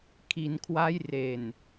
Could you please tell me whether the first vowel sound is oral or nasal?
oral